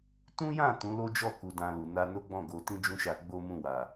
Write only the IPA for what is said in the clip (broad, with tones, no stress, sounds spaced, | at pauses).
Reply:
t ũ˦ j ã˦˨ t ũ˨˦ l o˦ d͡ʒ ɔ˦˨ k u˧ d ã˧ l u˨ n a˧ n o˦ ɡ͡b ɔ̃˦˨ ɡ o˨ t ĩ˧ d͡ʒ ũ˦ ʃ a˧ ɡ͡b o˦ m ũ˦˨ w a˨